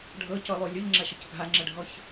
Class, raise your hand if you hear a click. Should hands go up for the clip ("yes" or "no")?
yes